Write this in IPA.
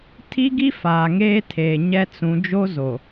tʰ i˦ ɡ i˦ f aː˨ ŋ eː˦ tʰ eː˨ ɲ ɛ˦ t͡s ũ˨˦ d͡ʒ o˦ z o˨

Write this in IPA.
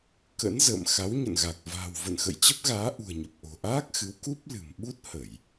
k ə̰˧˥ n z ə̰ː˧˨ m x a˨˦ w ɲ ə̰˧˨ n ɣ a˨˩ k̚ v a̤ː˨˩ w v ə̰˧˨ n x ə̰˧˨ j t͡ɕ ə˦˥ p̚ ɣ aː˨˦ ʔ ṳ˨˩ ə̯ ɲ ə˨˩ p̚ ʔ o̤˨˩ ʔ aː˦˥ k̚ x ɨ˨˦ w k u˦˥ p̚ l ɨ̤˨˩ m ɓ u˦˥ t̚ h ə˧˩˨ j

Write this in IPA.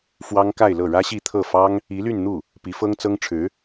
f w ɑ˥ ŋ k a˥˧ ɪ̯ l ɤ˥˩ ɻ ä˥ ɕ i˥˧ t̪ʰ ɤ˥˩ f ɑ˥ ŋ | i˧˥ l y˥˧ n n̪ u˥˩ | p i˧˥ f ɤ˥ ŋ t͡s ɤ˥ ŋ ʈ͡ʂʰ ɻ̩˧˥

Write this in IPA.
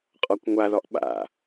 qʼ ɒ kʷ ŋʷ a ð ɒ ʔ ɓ a̰

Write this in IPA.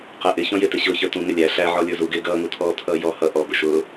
q ɛ ʔ ɪ ç ɔ̃ j ɪ t ɪ ɕ ʊː ç ə˞ t ũ ŋ ɪ lʲ æ ɬ æ ʕ ɔ lʲ ə˞ z u ɡ ɪː ɡ ʌː ŋ u t̪ʰ ɔː t̪ʰ ʌː j ɔ h ʌ ʔ ɔ b ʊ ʃ ʊː

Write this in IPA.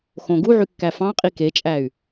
x õ ɡ u ʕ y kː æ f ɑ̃ qʼ i k e t͡ʃʼ æ y̯

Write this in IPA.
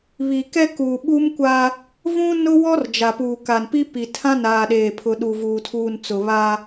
β i˨ k ɛ˦ k uː˨ ɓ u˦ m kʷ a˦ | v ũ˦ n ʊ˦ w ɔ˦ r d͡ʒ a˨ p uː˨ k a˨ n p i˦ p i˨ tʰ ã˦ n aː˨ ɗ eː˨ pʰ ʊ˨ ɗ u˨ v uː˨ tʰ uː˨ n t͡s ʊ˨ β a˦

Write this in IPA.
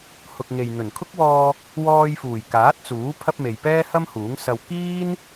h ʊ˨ k̚ ŋ e˨ j n̪ ɵ˨˩ n kʰ ʊ˥ k̚ w ɔː˧ | w ɔː˧ j f uː˨˩ j k aː˨˥ t̚ t͡s uː˨˥ pʰ ɐ˥ p̚ m e˨ j p ɛː˥ h ɐ˥ m h uː˨˥ ŋ s ɐ˧ w k iː˥ n

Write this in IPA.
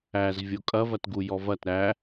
æ z vʲ o kʼ ɐ v ɐ t ɡ u j ɔ v ɐ t ɾ æ

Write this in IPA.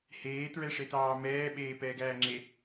h eː t ɹ ɛ ʂ e t ɑː m ɛː ɓ eː p ɛː ɡ æː ŋ͡ǁ e

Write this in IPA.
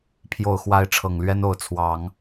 pʰ j o˨˩ ʊ̯ x w a˧˥ ɪ̯ ʈ͡ʂʰ ɤ˨˩ ŋ l ɥ ɛ˥ n o˧˥ ʊ̯ t͡sʰ w ɑ˨˩˦ ŋ

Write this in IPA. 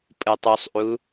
pʼ ɯ tˤ u sˤ ʔ u

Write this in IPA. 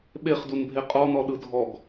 ɓ e χ d u n bʱ e qʼ ɔ n ɔ ɗ ɯ dʱ ɔ ɡ

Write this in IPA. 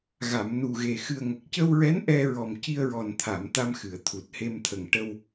ɣ a˨˩˨ m n u˨˩ ɣ e˨˩ x ɨ˨˩ ə̯ ŋ ə˨˩ k̚ c ə˧ w ɹ ɛ˧˥ n ʔ ɛ˧ ɹ ɔ˨˩ m c i˧ ə̯ ɹ ɔ˨˩ n t̪ʰ a˨˩˨ m t̪ a˧ m x ɨ˨˩˨ ə̯ t̪ʰ u˨˩ t̚ h e˧ m t̪ʰ ə˨˩ ŋ ʈ ə˧ w

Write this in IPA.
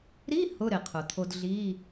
ɾ i˧˥˧ h ʊ˧˥˧ ɾ ɪ˩ qʰ ʊ˩ t̪ʰ o˧ d ɮ i˧˥˧

